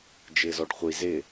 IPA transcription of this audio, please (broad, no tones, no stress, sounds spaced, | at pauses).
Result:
d͡ʒ ɪː z ɔ ɖ χʷ i z ɪ